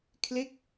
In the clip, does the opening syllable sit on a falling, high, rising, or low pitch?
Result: falling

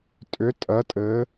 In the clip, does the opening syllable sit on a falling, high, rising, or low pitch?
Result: rising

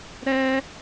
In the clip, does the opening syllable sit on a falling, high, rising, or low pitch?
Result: high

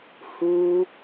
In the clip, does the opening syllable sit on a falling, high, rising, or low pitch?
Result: high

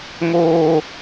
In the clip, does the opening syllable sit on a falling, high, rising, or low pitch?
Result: high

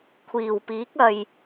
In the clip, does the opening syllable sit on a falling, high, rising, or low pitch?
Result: low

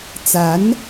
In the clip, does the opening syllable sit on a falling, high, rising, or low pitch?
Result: rising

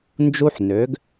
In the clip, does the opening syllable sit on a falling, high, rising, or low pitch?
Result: high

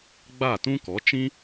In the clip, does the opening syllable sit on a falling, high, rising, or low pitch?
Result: falling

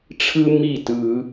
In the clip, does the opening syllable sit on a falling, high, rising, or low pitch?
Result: high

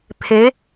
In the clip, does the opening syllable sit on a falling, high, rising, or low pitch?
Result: rising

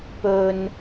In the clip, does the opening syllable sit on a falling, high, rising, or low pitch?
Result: low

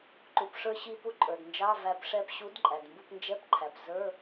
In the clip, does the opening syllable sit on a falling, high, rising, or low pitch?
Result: low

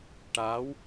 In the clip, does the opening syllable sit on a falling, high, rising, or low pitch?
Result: rising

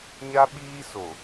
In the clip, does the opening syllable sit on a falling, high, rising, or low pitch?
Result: high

